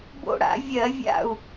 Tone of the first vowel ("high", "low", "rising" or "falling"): high